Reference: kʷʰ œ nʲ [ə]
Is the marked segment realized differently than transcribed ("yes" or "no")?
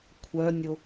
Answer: yes